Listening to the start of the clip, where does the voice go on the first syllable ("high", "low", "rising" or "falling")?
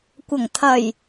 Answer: low